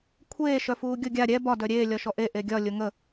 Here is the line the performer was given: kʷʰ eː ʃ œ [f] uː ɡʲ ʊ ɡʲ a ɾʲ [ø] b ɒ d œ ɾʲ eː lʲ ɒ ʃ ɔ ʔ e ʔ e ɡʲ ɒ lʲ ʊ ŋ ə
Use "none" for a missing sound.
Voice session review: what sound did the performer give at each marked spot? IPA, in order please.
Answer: f, ɛ

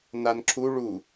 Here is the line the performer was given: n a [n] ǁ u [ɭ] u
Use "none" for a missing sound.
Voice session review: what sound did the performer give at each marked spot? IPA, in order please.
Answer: n, ɭ

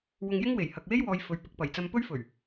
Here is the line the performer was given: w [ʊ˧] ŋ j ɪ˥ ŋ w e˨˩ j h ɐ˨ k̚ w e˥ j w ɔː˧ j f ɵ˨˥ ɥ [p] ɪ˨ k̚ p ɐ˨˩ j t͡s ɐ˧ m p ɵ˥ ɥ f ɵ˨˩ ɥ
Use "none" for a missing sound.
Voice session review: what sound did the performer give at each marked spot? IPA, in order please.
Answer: ʊ˧, p

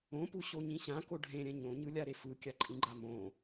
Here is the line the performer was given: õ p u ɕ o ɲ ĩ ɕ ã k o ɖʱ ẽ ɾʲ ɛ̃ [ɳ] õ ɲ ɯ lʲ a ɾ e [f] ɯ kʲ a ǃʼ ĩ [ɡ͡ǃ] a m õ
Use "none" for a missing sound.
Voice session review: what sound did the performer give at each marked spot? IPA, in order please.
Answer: ɲ, f, ɡ͡ǃ

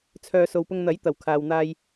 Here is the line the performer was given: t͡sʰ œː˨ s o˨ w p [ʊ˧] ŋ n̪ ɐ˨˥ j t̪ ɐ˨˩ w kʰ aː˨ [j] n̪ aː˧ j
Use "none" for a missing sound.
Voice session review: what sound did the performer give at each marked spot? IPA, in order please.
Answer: ʊ˧, w

